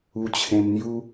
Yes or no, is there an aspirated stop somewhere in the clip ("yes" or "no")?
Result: yes